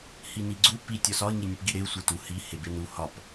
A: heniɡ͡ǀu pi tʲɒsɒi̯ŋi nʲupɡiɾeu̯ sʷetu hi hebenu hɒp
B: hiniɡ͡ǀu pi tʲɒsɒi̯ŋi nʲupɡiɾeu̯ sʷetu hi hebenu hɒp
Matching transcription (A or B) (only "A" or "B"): B